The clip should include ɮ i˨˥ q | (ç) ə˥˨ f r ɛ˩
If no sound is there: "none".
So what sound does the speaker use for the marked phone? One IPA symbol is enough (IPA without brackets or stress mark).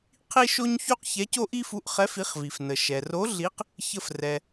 ç